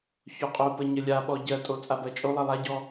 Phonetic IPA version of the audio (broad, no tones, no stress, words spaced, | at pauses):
çoqʼopə ɲəlʲaɓɔ ɟɜtʼo t͡sʼabɜt͡ʃʼolˠɜ lˠaɟɔ